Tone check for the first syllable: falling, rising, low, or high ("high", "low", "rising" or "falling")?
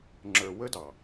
low